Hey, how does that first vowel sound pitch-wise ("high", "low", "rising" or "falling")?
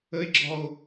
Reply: high